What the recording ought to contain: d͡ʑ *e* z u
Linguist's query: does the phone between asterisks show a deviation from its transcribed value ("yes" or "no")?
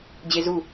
no